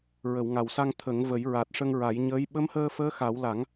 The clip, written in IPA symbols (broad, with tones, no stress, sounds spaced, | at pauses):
ɹ ə˨˩˨ w ŋ a˨˩ w s a˧ ŋ t̪ʰ ə˨˩˦ ŋ v ə˨˩˦ j ɹ a˨˩ t̚ ʂ ə˧ ŋ ɹ a˨˩˦ j ɲ əː˧˥ j ɓ ə˧˥ m h əː˧ f əː˧˥ x a˨˩˦ w l a˨˩˦ ŋ